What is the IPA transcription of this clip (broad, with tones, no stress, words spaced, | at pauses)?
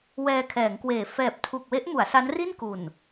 wɛː˧kʰɛː˩˦ŋkweː˨˩ fɛː˨˩p̚tʰu˨˩k̚we˦˥ʔ mu˩˦a̯sa˦˥n ri˥˩nku˨˩n